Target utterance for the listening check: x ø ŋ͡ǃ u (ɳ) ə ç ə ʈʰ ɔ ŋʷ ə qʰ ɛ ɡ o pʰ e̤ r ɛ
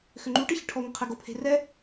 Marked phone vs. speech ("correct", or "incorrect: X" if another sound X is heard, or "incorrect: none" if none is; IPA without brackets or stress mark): incorrect: ʈ